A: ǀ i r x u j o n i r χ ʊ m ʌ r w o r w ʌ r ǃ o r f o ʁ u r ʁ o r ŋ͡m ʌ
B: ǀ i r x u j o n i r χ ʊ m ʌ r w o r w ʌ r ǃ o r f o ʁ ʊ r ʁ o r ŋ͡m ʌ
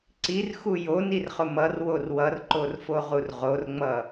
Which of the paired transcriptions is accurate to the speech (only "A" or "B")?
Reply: A